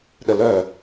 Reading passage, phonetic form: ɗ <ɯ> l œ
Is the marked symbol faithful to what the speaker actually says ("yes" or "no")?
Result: no